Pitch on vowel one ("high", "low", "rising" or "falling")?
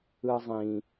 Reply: high